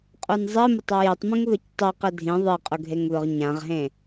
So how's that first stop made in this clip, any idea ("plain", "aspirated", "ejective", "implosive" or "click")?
ejective